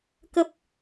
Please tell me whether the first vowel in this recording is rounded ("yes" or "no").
no